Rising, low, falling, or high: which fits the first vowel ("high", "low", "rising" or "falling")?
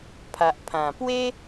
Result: low